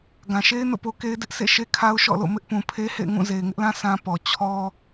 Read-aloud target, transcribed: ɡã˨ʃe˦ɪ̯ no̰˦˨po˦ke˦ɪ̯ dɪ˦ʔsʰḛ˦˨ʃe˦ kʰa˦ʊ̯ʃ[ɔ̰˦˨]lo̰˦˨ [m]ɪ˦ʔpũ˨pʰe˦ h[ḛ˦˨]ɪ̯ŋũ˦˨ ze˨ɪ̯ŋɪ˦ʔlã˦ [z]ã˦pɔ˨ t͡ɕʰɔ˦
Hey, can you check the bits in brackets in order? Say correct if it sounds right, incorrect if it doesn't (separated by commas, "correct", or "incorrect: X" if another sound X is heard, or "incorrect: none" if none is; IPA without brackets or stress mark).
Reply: correct, correct, correct, incorrect: s